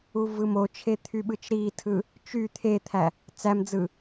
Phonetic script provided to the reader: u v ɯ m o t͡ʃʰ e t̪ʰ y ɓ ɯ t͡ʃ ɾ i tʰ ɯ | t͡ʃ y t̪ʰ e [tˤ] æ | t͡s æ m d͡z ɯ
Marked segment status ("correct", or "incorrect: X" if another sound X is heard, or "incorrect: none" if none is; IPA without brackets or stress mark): incorrect: t̪ʰ